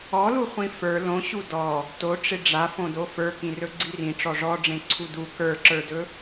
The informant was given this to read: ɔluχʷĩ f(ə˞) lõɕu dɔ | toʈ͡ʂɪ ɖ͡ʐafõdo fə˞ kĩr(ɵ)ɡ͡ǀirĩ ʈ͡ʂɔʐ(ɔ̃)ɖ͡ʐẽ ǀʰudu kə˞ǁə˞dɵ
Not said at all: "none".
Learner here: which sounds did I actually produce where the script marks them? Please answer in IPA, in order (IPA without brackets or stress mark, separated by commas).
ə˞, ɵ, ɔ